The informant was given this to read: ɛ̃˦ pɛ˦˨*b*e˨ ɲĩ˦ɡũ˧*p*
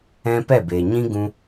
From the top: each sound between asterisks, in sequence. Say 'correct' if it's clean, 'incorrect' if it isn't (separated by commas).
correct, incorrect